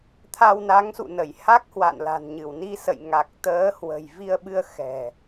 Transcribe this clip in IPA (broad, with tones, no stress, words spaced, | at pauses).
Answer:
t̪ʰa˧wna˨˦ŋsṵ˧˨nə˧˩j ha˦˥k̚hwa̰˧˨nla̤˨˩nɲɨ˧˩w ni˧sə̰˧˨jŋa˨˩k̚ t̪əː˨˦hwə̤˨˩j vi˧ə̯ɓɨ˧ə̯ xɛ̤˨˩